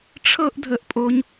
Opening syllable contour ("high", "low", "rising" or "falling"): high